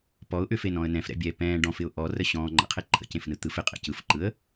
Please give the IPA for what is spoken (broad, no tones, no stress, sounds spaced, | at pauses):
p ɔ ʊ̯ ʔ ʏ f e n ɔ̃ ə̯ n ɛ̃ f ɾ ɛ̰ bʲ ɛː p ɛ̃ː ɖ ɔ̃ f ɪ ʊ̯ ʔ ɔ r ə ɕ ɔ̃ː ŋ͡ǃ ə̰ qʰ e ǃʰ ə̰ c ẽ f n ɯ t̪ ɯ f ɪ qʼ ɛ̰ c ɯ f ǃ ɯ ə̯